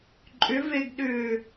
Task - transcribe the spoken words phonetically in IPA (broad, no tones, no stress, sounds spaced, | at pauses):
ǃʼ ʏ v e ɡ ɗ ʏː